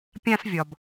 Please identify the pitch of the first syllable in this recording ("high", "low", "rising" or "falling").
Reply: high